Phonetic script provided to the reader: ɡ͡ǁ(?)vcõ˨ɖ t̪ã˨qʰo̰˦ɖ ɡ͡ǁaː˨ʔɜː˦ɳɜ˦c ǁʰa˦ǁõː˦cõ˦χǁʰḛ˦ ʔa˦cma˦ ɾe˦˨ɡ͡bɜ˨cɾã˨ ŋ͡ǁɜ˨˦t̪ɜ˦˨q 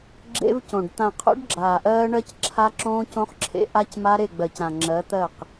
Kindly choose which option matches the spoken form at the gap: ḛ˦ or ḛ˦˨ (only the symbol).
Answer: ḛ˦